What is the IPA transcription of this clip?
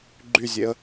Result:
ɡ͡ǃ y zʲ e ə̯

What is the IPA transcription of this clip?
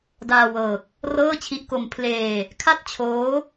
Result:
d aː˧ w ɤː˨˩ k̚ | r ɤː˥˩ t͡ɕʰ i˦˥ ʔ k o˧ m pʰ l eː˧ | kʰ a˥˩ t̚ t͡ɕʰ oː˦˥

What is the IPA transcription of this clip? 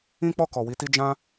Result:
ĩ˦ k͡p ɔ˦˨ k ɔ˨ w i˨˦ t i˦ d͡ʒ ã˦

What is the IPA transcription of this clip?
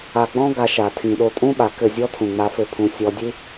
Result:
a˨ ɡ͡b ɔ̃˦ ɡ a˧ ʃ a˨ tʰ ĩ˨ ɗ o˧ tʼ ũ˦ ɓ a˨ k ɘ˦˨ zʲ ɔ˦ tʰ ũ˨ ŋ͡m a˧ f ɘ˦ pʰ ũ˧ sʲ ɔ˧ dʲ ɨ˦

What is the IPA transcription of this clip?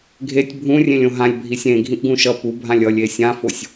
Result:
ɡʱ e tʲ bʱ ũ rʲ ẽ lʲ õ ɦ ã lʲ bʱ i sʲ ẽ ɡʱ ĩ ʔ ɡ ũ ʃ ʌ p u bʱ ã lʲ ʌ lʲ e sʲ ã f o sʲ

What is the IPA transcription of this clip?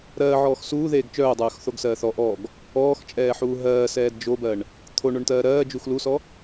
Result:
ɾ ɜː ʕ ɔː x s uː ð eː ɡ t͡ʃ œː dˤ œː x θ o ɡ s ɜː θ ɔ ʔ ɔ ɡ | ɔː x t͡ʃʼ ɛː ħ uː ɦ ɜː s ɛː d d͡ʒ o b ɜ ɳ | t̪ʰ o ɳ o ɳ t ɜː ɾ ɜː d͡ʒ u x l u s ɔ

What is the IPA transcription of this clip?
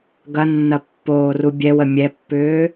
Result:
ɡ ɐ nː ɐ pː oː r u bʲ ɛ w ə mʲ ɛ pː ʏː

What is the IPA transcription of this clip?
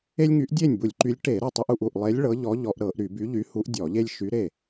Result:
e˦ lʲ ŋ y˨˥ ʔ dʲ e˥˩ nʲ b u˧˩˧ lʲ ǃ y˨˥ lʲ ʈ e˧˩˧ ɾ ɤ˥˩ tˤ u˦ ʔ u˧˩˧ ʔ u˧˩ ʔ lˠ e˨˥ lʲ ɭ ɤ˨˥ ʎ ɔ˨˥ ʎ ɔ˧˩˧ ʔ ɾ ɤ˧˩˧ ʔ ɾ y˧˩˧ b y˨˥ ʎ y˨˥ h u˨˥ ʔ dʲ ɔ˧˩˧ ʎ e˦ lʲ ʃ y˨˥ ɾ e˥˩

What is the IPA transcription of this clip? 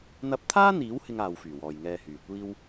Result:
n̪ ɐ˧ p̚ t̪ʰ aː˥ n̪ iː˨˥ w h ɪ˥ ŋ aː˧ w f yː˨˩ w ɔː˨ j ŋ ɛː˧ h yː˨˩ kʷ iː˥ w

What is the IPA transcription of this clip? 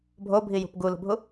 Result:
bʱ o bʱ i j ṳ p ɡ u l o̤ bʱ u

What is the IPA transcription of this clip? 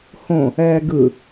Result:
h õ | ɛː ɡ ɯ

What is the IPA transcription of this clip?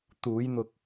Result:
t̪ uː˨˧ j n̪ ʊ˨ k̚

